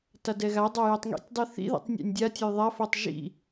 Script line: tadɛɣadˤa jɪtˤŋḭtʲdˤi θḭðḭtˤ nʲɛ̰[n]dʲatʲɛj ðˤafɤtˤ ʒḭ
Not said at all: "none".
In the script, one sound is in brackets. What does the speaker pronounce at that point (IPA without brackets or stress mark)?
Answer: nʲ